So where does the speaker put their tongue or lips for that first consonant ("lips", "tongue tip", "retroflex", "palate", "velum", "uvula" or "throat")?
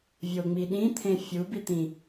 lips